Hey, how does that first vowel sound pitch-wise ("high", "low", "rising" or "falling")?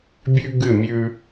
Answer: high